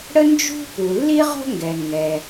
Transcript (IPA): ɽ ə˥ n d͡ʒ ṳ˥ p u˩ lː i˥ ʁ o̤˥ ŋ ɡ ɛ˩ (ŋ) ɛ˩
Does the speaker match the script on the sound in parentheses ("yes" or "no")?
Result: yes